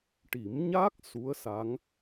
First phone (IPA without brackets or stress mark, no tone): ʈ